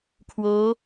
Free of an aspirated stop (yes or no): no